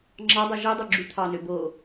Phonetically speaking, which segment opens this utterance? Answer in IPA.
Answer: ŋ͡ǁ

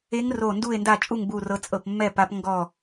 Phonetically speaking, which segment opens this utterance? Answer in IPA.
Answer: e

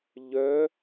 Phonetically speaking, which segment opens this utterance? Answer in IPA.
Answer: ʎ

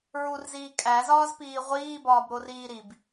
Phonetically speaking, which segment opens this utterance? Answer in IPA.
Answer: ɹ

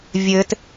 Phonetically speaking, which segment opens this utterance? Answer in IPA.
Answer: vʲ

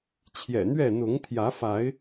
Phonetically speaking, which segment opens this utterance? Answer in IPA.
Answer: t͡ɕʰ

